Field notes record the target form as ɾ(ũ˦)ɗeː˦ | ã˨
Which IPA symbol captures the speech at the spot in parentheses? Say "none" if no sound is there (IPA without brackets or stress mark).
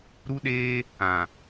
u˦